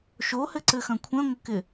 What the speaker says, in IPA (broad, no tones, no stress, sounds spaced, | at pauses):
ʃ o h ɘ ǀ ɘ x ɐ̃ kʷʰ ɛ̃ ŋʷ ɘ k ɪ